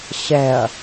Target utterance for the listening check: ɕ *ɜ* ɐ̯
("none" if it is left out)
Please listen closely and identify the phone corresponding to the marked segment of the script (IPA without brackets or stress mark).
ɛ